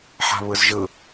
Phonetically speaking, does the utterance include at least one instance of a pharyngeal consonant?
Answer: yes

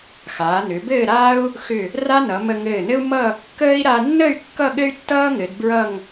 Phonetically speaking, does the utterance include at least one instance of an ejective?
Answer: no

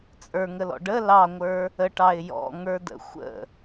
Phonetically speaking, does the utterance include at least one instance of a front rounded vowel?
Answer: no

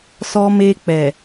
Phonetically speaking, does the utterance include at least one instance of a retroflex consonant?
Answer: no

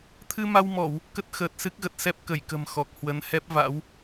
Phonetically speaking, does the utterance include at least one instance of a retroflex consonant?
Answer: no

